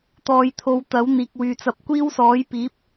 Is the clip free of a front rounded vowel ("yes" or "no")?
no